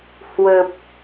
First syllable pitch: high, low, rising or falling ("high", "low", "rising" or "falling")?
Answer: low